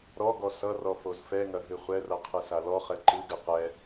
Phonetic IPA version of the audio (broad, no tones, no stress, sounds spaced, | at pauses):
ɾ ɔ ɡ ɔ s ʌ r ɔ f o z f ɛ ŋ ɐ ɦ ɨ χʷ ɛ r ʌ qʰ ɨ s a l ɔ χ ɛ ǃ ɨ ɡ ɨ q ɛ